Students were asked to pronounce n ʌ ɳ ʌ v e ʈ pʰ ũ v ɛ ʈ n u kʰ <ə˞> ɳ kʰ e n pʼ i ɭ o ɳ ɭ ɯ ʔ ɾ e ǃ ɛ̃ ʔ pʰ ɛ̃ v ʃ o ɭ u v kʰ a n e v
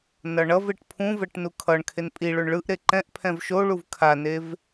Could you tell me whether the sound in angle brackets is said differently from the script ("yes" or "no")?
yes